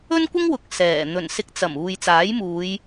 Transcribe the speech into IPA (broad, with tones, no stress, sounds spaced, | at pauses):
ɵ˥ n kʷ ɪ˥ ŋ w ʊ˨ k̚ s ɛː˨˩ n̪ ɵ˨˩ n s ɪ˧ k̚ t͡s ɐ˨˩ m uː˨ j t͡s aː˨˥ j m uː˨˧ j